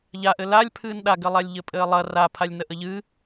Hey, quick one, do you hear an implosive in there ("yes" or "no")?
yes